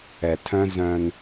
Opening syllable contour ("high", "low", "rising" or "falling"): low